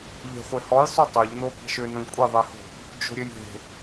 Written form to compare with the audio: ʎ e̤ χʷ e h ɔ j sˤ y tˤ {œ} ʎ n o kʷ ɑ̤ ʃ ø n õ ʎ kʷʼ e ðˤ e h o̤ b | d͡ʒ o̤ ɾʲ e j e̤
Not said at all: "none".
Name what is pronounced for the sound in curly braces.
œ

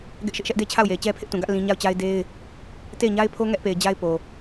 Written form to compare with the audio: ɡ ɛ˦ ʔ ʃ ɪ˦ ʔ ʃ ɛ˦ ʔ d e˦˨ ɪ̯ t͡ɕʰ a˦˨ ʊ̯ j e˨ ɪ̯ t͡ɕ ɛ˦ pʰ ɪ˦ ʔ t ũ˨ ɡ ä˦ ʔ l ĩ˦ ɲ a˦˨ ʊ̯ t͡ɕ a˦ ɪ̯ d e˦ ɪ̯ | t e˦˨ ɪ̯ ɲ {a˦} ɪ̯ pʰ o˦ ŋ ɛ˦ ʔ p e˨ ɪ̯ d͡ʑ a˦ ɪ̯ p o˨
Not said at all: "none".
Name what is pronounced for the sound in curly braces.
a˦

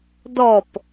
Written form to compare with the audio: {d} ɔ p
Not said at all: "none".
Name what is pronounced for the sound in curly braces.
d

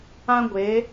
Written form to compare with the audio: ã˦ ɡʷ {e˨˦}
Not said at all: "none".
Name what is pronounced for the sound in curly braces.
e˨˦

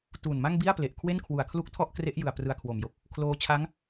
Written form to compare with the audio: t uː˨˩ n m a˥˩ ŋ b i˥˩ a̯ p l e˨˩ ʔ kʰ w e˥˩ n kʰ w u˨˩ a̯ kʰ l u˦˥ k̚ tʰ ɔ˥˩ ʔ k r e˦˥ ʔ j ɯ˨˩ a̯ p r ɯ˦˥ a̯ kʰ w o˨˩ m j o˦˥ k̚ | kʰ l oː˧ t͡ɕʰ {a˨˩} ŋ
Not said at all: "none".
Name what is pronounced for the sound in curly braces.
a˦˥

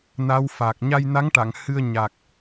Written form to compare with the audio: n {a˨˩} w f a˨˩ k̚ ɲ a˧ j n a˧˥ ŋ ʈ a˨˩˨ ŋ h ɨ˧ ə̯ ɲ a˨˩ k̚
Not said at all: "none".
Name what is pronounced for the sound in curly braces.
a˧˥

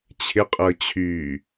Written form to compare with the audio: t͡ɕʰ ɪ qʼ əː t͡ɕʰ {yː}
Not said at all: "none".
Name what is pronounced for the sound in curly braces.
yː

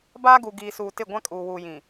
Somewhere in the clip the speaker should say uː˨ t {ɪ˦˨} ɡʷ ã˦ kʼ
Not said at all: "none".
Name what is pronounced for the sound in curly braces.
ɪ˦˨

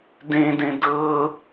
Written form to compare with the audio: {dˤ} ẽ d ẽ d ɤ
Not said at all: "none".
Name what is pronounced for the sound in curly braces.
d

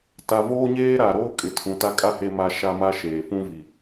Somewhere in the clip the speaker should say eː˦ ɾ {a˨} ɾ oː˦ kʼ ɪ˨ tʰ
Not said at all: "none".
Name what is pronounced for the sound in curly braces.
a˨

